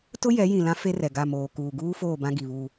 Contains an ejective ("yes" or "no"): no